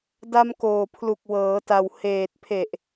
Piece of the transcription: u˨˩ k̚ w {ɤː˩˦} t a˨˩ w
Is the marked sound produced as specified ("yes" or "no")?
yes